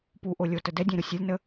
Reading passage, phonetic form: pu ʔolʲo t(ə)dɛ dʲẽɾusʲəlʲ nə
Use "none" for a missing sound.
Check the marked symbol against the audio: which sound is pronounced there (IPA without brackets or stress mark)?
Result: ə